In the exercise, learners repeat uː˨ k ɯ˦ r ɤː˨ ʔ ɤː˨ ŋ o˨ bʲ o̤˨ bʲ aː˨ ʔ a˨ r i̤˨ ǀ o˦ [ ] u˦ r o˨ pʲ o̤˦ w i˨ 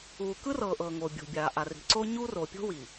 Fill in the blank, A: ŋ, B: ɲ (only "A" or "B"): B